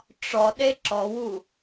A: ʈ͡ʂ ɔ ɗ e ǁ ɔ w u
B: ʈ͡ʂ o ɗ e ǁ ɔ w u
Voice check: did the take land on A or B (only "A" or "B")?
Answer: A